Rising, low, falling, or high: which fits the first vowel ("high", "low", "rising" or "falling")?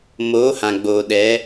rising